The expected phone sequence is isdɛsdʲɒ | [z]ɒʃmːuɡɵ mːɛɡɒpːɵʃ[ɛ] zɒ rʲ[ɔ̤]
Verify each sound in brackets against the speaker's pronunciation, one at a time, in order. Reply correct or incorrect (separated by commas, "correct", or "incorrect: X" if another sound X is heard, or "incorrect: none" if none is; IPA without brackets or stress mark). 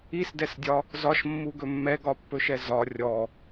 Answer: correct, correct, incorrect: ɔ